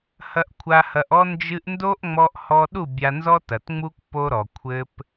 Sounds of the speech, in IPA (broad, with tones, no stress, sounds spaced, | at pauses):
h ɐ˧ ʔ kʷʰ a˧ h ɐ˧ ʔ ɔ˦ n d͡ʒ ɨ˦ ʔ n d o˦ ʔ ŋ͡m ɔ˧ ʔ h ɔ˧ ɗ u˦˨ bʲ a˧ n z ɔ˦ t ɐ˨ t ŋ͡m u˦ k p o˧ ɾ ɔ˨ kʷʰ ɘ˦ p